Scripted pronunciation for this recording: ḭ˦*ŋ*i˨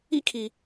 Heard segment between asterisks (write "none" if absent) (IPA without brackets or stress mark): kʰ